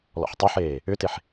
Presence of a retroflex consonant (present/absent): absent